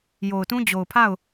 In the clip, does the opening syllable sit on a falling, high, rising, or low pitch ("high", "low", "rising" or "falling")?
low